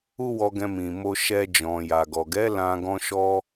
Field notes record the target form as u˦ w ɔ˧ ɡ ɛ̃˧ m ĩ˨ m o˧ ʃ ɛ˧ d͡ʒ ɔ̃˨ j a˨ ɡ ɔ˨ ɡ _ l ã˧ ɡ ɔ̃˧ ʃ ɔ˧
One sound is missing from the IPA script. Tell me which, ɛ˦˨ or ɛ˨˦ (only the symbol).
ɛ˨˦